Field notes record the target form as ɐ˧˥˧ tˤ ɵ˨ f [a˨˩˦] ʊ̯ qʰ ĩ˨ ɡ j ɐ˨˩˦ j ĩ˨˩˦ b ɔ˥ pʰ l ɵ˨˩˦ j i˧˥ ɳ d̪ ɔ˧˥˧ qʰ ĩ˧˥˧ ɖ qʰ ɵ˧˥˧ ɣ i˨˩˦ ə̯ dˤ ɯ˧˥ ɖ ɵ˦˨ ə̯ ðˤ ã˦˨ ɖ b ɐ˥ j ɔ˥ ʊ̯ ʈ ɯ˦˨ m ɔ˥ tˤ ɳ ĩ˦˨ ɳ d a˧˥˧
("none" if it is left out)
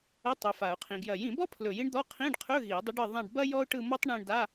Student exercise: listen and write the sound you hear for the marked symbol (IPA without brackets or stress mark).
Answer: a˨˩˦